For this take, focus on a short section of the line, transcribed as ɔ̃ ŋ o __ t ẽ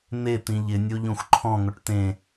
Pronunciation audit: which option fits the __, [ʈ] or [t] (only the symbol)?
ʈ